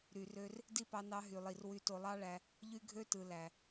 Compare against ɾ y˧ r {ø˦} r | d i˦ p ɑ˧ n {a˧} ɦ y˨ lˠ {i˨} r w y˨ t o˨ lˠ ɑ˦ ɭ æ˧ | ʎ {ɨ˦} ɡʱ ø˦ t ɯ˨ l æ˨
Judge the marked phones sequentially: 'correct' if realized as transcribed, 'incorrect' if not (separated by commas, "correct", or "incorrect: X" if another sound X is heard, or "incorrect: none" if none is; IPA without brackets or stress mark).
correct, incorrect: ɑ˧, correct, incorrect: y˦